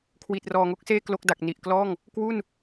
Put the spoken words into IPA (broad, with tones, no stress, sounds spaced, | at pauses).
kʰ w i˨˩ t̚ r ɔː˨˩ ŋ o˥˩ k̚ s eː˥˩ k l o˦˥ k̚ d a˨˩ k̚ n i˨˩ ʔ k l ɔː˥˩ ŋ | k w u˥˩ n